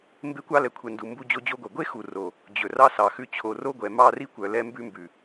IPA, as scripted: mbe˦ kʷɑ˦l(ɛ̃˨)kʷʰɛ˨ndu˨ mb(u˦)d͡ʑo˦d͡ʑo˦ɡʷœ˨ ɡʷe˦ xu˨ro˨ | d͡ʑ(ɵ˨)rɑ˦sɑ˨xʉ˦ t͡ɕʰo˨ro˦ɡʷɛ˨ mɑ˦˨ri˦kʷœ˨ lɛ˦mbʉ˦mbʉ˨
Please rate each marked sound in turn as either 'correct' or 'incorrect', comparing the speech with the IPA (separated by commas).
incorrect, correct, correct